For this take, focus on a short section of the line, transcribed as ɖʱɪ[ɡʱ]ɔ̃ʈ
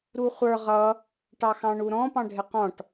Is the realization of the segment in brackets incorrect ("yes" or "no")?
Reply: yes